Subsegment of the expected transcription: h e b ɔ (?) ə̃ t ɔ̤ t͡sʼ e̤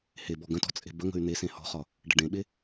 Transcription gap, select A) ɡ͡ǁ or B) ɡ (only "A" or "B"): B